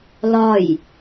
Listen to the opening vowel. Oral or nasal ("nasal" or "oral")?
oral